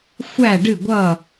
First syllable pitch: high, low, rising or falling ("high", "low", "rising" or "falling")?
falling